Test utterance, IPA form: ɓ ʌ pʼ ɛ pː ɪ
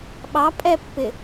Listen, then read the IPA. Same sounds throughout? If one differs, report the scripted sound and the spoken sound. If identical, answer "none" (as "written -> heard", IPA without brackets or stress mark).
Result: ʌ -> ɑ